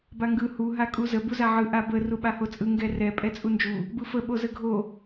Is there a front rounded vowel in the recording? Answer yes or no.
no